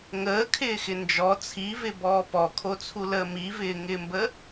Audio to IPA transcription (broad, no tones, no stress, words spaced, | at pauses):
ŋəːkʰɪːxɪ nd͡ʒɔ t͡sʰivɪbɔː pɔkʰot͡sʰuləː mivɪːŋɪːmbə